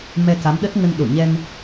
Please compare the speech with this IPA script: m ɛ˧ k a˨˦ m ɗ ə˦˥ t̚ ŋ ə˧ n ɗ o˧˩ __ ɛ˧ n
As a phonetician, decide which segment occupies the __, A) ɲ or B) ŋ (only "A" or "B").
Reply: A